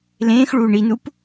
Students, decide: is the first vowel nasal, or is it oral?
nasal